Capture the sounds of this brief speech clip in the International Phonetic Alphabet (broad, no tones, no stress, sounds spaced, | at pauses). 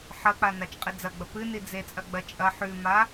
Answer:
ħ ɐ k͡p a n a t͡ʃ qʼ e d͡z ɐ ɡ͡b ɐ p ɨ n i d͡z e t͡sʼ ɐ ɡ͡b ɐ t͡ʃʼ ɐ ħ ʉ m a